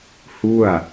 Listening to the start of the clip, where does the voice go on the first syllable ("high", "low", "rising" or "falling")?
falling